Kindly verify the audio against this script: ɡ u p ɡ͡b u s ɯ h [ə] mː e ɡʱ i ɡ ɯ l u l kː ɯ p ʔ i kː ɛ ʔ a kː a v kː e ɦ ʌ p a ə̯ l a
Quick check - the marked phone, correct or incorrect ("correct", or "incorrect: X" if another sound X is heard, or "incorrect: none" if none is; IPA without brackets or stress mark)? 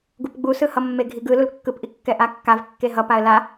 incorrect: ʌ